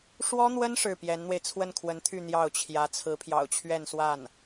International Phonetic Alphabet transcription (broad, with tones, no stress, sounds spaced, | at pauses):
ʂ w ɔ˥ n̪ w ə˥ n ʂ ɻ̩˥˩ p j ɛ˧˥ n n̪ w e˧ ɪ̯ t͡sʰ w ə˥˩ n kʰ w ə˧˥ n t̪ʰ y˥˧ n̪ j ɑ˥˩ ʊ̯ t͡ɕʰ j ä˧˥ t͡sʰ ɹ̩˧˥ pʰ j ɑ̰˨˩ ʊ̯ t͡ɕʰ ɥ ɛ˥˧ n s w a˥˩ n